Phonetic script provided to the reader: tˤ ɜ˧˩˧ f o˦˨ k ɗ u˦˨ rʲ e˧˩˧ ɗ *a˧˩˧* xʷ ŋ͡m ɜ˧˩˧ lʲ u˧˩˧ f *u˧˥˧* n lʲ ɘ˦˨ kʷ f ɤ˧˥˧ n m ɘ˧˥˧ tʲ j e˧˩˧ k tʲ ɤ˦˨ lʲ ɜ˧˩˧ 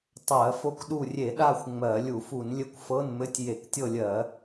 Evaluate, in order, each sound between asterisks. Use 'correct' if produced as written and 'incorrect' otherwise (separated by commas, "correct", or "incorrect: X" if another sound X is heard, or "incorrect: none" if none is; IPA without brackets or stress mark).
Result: incorrect: a˦˨, incorrect: u˧˩˧